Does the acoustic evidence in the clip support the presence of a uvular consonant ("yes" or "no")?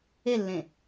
no